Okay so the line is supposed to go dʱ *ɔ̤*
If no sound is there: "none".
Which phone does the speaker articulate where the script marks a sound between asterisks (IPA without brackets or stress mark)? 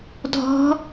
ɔ̤